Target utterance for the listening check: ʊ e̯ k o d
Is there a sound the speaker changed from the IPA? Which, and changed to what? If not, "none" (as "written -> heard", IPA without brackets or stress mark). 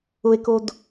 none